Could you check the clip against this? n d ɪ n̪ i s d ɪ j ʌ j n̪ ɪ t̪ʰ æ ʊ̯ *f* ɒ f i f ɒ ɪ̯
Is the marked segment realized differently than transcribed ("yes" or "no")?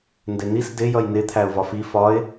yes